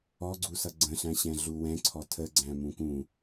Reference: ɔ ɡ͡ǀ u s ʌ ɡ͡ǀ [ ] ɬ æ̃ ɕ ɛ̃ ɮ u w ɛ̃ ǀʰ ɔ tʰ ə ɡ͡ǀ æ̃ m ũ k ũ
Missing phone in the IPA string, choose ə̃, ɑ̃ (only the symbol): ə̃